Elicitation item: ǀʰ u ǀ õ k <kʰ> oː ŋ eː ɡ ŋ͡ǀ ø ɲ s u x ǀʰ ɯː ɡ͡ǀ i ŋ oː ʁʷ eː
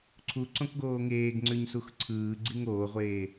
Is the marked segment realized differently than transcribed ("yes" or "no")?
yes